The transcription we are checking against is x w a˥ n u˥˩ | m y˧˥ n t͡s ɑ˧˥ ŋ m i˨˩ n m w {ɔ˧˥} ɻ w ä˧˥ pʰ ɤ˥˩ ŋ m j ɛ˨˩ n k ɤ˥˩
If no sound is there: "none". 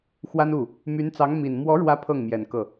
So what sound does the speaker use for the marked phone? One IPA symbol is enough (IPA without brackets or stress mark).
ɔ˧˥